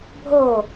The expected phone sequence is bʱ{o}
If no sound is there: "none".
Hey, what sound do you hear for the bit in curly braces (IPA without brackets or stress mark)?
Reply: o